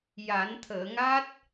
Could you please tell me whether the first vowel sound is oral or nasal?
oral